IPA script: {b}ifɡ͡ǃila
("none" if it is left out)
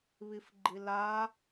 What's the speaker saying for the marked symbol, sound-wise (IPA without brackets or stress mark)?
β